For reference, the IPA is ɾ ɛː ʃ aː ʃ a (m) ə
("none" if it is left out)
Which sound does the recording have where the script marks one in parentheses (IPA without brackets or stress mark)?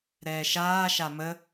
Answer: m